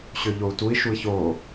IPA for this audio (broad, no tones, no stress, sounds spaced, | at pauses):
ɕ ø ʎ o u̯ t u i̯ ʃ u i̯ ç oː